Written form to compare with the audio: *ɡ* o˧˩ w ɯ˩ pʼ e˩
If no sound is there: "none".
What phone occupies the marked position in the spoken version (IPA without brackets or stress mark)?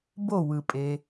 b